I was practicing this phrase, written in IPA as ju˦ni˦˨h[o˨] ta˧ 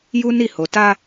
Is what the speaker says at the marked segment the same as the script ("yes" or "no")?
yes